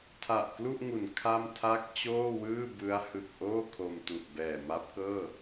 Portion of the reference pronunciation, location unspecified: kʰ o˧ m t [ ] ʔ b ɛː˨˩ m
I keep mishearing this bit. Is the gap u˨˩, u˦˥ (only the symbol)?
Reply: u˨˩